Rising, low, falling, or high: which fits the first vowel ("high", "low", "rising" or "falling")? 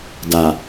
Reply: low